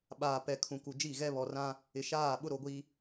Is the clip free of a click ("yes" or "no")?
yes